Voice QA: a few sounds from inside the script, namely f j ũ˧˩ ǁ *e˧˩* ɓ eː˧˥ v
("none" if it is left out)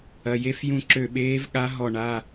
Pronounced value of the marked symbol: ø˧˩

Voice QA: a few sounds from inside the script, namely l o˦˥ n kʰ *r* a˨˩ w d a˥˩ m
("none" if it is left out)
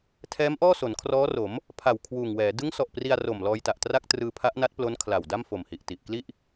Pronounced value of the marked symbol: l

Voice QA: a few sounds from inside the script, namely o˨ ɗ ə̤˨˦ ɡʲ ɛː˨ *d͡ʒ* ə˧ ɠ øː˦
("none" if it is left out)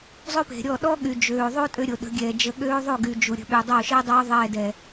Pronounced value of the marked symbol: d͡ʒ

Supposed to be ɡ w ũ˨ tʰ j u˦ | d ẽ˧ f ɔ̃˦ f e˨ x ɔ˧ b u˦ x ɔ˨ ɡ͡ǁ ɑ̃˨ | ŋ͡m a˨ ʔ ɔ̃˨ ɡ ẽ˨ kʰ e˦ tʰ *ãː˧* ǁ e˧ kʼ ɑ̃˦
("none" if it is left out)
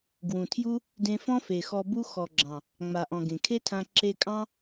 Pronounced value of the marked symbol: ã˧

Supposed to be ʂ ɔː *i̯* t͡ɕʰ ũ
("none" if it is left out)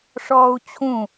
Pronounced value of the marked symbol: u̯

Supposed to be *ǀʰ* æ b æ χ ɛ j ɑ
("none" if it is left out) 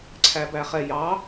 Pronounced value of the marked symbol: ǀʰ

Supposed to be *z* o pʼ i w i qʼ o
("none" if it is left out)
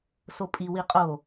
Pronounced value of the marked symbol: s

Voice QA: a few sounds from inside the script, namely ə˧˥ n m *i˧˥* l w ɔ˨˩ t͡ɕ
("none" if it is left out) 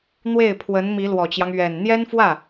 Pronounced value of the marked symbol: i˧˥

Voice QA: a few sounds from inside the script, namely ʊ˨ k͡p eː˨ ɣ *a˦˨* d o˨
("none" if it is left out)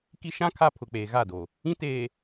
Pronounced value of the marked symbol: a˦˨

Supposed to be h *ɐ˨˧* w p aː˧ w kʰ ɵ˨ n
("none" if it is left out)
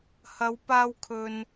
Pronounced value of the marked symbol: ɐ˨˧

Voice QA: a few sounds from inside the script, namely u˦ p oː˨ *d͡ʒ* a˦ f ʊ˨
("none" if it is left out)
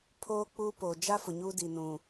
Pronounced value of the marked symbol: d͡ʒ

